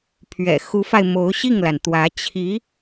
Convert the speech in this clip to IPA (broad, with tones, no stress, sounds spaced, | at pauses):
pʰ ɥ ɛ̰˨˩ x u˧˥ f a˧ ɪ̯ m o˧˥ ʊ̯ ɕ i˥˩ ŋ l a˩ n t̪ w ä˧˥ t͡ɕʰ i˧˥